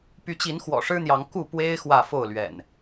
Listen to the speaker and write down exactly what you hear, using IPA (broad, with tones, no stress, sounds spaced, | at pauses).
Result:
p y˨˦ t͡ɕ i˨˦ n x w ɔ̰˨˩ ʂ ɻ̩˦ n̪ j ɑ˨˦ ŋ k u˥˨ p w e˦ ɪ̯ x w ä˥˨ f o˥˨ ʊ̯ l ɥ ɛ̰˨˩ n